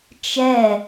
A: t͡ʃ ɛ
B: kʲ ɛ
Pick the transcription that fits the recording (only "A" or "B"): A